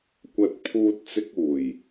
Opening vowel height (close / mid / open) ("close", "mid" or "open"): open